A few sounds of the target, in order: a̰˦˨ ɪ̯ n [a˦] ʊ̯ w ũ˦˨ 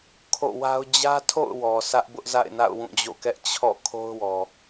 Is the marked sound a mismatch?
yes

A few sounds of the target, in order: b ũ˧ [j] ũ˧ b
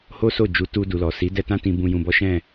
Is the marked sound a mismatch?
no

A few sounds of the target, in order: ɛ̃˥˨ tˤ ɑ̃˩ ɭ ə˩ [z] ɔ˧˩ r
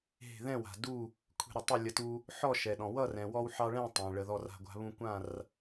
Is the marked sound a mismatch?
yes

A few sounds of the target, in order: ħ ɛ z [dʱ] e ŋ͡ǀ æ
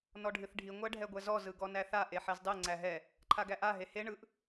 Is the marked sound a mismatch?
yes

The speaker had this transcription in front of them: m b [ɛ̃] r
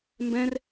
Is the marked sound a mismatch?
no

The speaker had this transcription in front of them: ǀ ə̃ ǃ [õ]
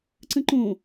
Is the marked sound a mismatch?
no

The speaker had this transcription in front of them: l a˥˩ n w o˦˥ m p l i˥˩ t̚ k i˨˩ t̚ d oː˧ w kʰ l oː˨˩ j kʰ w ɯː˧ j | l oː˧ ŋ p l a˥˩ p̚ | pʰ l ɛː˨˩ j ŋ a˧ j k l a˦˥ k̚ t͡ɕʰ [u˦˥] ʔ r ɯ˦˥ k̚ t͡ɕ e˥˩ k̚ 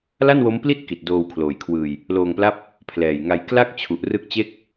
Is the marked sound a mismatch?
yes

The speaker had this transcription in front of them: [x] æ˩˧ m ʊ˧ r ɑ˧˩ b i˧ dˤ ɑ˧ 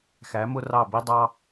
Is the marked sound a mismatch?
no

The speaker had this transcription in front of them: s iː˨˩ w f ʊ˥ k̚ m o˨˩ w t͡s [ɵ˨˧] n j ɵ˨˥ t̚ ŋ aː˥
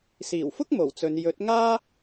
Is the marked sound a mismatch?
no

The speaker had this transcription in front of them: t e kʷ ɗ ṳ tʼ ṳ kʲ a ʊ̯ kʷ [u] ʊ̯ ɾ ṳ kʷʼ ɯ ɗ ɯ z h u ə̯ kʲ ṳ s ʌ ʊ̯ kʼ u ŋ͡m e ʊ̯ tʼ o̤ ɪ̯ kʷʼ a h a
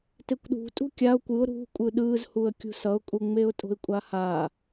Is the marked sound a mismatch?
yes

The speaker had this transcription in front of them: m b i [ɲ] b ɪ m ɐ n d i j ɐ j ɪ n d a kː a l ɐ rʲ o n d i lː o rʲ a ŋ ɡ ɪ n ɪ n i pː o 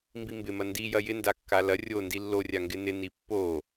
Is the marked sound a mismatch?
yes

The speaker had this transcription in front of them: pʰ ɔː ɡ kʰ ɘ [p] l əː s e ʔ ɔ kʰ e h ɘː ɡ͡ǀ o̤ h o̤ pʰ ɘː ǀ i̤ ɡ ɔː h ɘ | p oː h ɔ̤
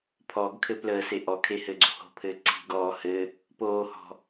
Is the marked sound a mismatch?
no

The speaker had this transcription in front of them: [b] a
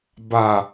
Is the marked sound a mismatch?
no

